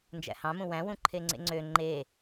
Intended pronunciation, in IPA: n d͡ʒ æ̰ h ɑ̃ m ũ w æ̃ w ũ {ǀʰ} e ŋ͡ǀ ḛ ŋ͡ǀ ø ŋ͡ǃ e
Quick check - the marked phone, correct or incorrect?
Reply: incorrect